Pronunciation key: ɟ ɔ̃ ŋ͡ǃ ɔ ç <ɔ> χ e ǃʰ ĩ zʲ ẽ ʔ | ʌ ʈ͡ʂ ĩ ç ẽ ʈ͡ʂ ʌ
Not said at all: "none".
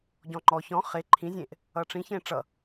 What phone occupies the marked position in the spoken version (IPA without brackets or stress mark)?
ɔ̃